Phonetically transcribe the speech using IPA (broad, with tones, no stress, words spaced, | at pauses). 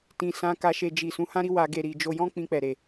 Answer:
tĩ˨ sã˧ka˧ʃe˧ d͡ʒi˨sũ˨˦hã˦ɾi˦ wa˧ ɡe˨ɾi˨ d͡ʒo˧jɔ̃˦ k͡pĩ˧k͡pɛ˨ɾe˨